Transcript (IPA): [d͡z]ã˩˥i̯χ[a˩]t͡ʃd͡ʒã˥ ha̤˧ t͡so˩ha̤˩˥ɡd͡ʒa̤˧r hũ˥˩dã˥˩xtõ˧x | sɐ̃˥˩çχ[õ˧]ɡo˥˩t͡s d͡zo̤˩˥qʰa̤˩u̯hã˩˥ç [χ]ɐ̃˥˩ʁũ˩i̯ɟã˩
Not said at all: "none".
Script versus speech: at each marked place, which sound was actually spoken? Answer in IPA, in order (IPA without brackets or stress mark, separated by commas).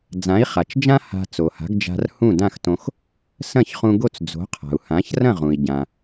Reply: d͡z, a˩, ũ˧, r